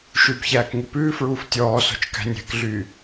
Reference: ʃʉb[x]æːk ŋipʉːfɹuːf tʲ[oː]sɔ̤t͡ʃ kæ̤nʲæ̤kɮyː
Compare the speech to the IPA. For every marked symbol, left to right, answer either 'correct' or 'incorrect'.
incorrect, incorrect

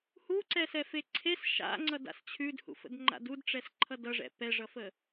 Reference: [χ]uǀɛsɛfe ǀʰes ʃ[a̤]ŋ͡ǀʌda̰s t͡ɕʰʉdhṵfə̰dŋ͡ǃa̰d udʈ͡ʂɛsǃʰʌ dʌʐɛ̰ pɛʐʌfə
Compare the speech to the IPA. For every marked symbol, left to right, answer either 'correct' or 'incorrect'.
incorrect, incorrect

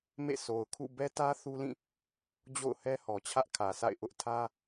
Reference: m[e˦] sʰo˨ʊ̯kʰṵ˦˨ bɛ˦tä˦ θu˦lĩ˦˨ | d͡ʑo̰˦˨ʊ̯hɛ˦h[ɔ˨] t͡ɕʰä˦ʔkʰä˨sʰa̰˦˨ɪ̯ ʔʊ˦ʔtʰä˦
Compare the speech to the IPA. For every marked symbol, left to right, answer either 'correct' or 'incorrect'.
incorrect, correct

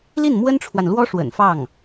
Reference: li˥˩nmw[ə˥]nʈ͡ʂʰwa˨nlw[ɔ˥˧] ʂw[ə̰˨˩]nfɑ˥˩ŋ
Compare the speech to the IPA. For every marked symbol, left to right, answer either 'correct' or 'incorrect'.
correct, incorrect, correct

